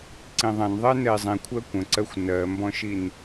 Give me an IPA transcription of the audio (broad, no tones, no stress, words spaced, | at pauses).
ǀĩðˤɛ̃nðˤɛ nɛi̯zˤĩ kʷʰɜkʷə̃ǀɜxʷ nɜmbɔ̃ʃin